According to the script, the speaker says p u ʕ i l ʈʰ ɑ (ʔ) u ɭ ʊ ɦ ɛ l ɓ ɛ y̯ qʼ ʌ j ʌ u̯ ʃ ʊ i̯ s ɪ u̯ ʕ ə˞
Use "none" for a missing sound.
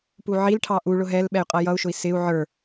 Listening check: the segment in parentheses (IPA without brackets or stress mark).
ʔ